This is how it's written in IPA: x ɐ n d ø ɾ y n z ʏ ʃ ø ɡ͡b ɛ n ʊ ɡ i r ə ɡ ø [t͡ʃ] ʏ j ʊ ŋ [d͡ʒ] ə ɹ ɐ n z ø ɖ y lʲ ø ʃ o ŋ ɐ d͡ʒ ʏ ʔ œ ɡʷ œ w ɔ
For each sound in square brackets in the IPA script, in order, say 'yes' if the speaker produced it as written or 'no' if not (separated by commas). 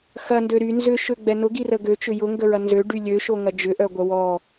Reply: yes, no